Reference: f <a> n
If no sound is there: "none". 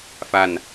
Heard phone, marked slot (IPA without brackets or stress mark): a